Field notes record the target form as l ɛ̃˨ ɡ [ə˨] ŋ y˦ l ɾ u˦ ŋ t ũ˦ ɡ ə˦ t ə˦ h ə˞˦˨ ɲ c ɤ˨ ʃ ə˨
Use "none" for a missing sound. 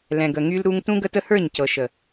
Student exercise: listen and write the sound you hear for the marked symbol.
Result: ə˨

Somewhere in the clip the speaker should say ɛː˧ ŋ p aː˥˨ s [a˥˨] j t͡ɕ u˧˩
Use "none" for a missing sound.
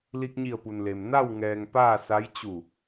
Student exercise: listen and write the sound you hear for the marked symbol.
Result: a˧˥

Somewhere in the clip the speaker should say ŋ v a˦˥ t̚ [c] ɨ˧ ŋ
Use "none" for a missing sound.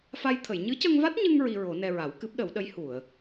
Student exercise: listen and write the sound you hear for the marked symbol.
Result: ɲ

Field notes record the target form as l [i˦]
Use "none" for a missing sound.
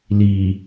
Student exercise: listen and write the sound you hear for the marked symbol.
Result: i˨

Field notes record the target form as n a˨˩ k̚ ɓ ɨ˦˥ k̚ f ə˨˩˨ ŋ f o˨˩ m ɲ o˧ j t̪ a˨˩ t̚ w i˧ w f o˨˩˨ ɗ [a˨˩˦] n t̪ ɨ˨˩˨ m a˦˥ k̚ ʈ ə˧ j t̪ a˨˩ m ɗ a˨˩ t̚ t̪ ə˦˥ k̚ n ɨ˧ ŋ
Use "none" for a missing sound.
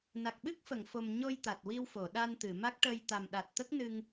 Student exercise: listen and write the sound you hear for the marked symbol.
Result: a˧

